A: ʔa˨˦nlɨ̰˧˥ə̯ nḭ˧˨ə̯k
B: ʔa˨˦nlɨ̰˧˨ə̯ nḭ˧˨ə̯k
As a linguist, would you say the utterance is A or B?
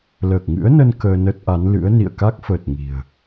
A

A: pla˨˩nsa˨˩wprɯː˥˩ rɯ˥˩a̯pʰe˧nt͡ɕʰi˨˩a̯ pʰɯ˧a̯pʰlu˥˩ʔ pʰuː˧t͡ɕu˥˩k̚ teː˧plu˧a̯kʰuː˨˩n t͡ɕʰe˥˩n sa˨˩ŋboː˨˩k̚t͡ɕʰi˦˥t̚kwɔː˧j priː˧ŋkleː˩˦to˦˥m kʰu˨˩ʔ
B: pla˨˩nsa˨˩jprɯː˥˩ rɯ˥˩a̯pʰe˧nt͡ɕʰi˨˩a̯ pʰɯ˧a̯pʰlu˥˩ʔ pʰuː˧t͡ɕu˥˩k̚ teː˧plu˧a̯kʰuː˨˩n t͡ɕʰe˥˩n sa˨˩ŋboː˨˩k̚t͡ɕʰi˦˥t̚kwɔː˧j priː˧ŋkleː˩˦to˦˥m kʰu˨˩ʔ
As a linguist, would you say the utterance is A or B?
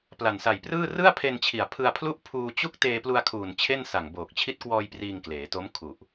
B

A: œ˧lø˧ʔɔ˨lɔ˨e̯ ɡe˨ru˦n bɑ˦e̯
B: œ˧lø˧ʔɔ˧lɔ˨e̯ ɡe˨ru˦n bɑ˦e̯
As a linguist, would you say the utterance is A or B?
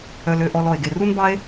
B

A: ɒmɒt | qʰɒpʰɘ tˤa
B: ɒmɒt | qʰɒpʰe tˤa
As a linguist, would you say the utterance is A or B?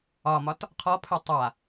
A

